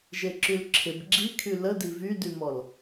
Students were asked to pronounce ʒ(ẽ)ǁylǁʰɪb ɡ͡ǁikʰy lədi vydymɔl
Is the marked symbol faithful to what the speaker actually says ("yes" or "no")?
no